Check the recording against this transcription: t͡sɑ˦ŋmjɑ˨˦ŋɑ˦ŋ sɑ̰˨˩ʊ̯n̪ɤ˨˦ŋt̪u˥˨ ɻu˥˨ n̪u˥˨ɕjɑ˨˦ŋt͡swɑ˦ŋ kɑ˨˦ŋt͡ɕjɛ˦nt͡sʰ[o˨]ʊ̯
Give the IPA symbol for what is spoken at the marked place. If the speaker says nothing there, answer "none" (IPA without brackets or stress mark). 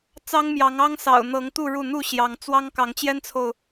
o˨